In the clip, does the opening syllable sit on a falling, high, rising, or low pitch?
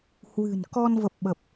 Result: low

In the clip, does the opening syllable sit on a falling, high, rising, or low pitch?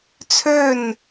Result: falling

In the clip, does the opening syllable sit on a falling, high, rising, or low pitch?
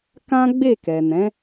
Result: high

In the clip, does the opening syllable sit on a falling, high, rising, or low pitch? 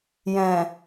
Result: low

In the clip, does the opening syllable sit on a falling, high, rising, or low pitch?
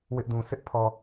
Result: high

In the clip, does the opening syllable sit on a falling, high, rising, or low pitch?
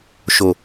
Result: low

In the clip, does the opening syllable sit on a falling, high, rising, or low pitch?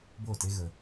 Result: falling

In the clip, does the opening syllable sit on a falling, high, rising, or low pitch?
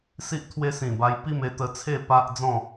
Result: high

